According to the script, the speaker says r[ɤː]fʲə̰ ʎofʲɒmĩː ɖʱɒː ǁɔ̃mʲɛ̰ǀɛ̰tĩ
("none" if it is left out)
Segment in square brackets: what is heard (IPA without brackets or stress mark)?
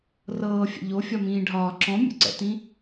ɤː